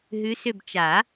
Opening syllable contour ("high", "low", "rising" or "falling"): rising